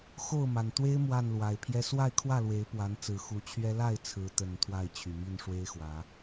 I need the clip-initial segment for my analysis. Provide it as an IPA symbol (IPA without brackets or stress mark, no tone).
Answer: x